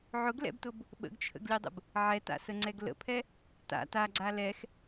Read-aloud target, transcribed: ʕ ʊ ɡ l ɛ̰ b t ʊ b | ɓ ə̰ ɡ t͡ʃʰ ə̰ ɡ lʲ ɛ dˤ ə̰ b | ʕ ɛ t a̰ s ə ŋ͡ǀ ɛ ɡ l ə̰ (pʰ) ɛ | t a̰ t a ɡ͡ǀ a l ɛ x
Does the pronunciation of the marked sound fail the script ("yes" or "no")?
no